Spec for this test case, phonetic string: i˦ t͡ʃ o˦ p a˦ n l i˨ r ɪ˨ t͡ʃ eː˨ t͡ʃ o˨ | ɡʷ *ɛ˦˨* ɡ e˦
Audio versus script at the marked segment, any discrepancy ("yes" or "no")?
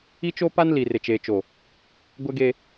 yes